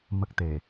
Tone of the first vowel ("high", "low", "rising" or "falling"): high